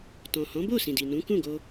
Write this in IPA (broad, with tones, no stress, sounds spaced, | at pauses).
t ɔ̃˨ h ɔ̃˨˦ b o˦˨ s ĩ˨ d i˨ n ũ˨˦ k ũ˦˨ ɡ o˧